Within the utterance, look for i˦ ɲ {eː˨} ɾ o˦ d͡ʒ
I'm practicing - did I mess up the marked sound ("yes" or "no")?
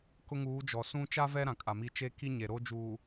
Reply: yes